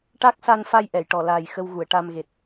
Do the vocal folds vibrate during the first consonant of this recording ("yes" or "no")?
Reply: no